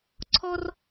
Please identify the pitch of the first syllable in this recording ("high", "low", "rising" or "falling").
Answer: high